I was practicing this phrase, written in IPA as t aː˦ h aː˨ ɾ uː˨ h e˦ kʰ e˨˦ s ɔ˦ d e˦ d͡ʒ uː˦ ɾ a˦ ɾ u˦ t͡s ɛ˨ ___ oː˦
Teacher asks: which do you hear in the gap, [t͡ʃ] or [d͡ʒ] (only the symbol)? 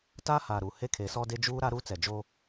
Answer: d͡ʒ